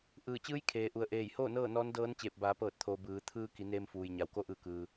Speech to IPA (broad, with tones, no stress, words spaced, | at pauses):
ʔɯː˧˩t͡ɕɯː˧˥j kʰeː˩ʔu˩ə̯ ʔeː˧˩jhoː˥˨ nɤː˥˨ nɔː˧˥ndɤː˧˥nt͡ɕeː˧˩p̚ baː˩˧pɤː˧˩t̚t̪ʰoː˩ bɯː˩˧ t̪ʰɯː˧ki˩˧ neː˧mfuː˩jɲa˩w ko˧ʔɯː˧˩ kɯː˩